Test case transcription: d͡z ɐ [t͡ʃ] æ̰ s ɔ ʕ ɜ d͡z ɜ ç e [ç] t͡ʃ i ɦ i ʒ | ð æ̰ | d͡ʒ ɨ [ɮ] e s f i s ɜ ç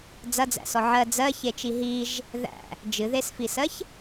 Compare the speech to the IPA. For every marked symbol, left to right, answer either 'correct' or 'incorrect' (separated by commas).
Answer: incorrect, incorrect, incorrect